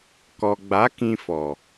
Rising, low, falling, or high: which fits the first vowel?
low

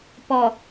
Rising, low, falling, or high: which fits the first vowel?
low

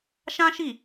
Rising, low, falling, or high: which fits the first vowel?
high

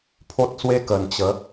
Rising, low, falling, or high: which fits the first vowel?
high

